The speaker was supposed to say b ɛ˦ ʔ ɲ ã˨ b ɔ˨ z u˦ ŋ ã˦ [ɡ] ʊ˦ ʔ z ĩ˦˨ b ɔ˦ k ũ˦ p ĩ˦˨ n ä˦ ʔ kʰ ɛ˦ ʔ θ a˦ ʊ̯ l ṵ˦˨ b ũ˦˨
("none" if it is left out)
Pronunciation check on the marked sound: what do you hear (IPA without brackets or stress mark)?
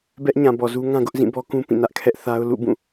ɡ